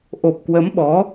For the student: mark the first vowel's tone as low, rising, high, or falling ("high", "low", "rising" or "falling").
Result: low